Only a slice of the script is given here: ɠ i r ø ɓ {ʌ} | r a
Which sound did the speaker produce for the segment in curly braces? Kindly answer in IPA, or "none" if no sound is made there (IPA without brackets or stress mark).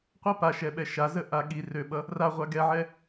ʌ